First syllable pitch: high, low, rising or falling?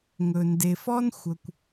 low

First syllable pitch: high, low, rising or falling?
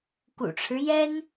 low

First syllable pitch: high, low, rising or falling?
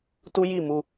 high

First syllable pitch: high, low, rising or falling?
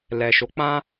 low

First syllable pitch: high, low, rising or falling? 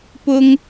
high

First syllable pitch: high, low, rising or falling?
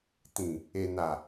low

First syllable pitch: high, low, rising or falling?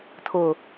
low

